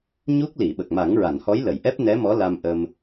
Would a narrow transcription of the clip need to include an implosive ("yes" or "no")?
yes